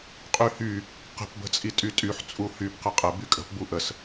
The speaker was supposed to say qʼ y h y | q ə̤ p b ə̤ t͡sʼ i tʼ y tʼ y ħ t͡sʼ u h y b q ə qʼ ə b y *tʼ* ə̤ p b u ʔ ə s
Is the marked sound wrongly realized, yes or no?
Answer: yes